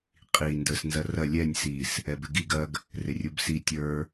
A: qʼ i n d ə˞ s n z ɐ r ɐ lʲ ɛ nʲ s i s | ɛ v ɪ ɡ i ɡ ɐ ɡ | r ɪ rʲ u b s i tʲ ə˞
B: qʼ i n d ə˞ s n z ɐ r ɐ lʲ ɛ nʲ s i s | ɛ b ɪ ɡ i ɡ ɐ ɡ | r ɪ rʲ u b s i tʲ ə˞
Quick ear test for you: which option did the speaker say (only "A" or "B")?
B